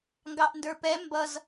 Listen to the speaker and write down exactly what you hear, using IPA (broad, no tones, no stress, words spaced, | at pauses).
ŋɡɑʔndə˞pɛ mbʌz